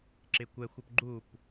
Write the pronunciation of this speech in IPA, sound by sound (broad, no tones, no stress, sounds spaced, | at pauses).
ǁ ɪ kʷ ɛ xʷ ɔ p ɡ͡ǃ u p